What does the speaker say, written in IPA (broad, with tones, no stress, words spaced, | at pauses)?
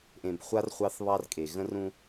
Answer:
ʔẽ˨bχʷa˦r χʷɑ˦θβɑ˦rkʼe˨ ɣə̃˦rũ˦